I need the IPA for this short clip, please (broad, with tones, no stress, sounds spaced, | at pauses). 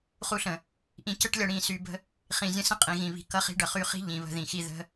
χ u˧ ɬ ə̃˨ | ʔ ĩ˧ c ə˦ ʈ lʲ ʌ˧ ɽ ĩ˦˨ s y˧ b ə̤˦ | χ ĩ˨ zʲ ə̃˧ s ə̃˦ qʼ ĩ˨ ɣ ĩ˨ β i̤˨ k ʌ˦ χ i̤˦ ɖ ʌ˨ χ y˧ χ i̤˦ ʎ ĩ˨ β ə̤˧ ð ĩ˨ x i˧ ð ə̤˦